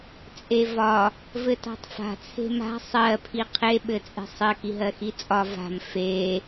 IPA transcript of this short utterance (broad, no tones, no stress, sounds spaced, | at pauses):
t͡sʼ e v ɒ | v ɘ t a̤ tˤ f a̤ t͡sʰ e̤ m a̤ sˤ ɜ pʰ i qʰ e ɓ ɘ t͡sʼ e̤ sˤ ɘ k i ɦ ɜ x i t͡sʼ ɒ v a̤ m f e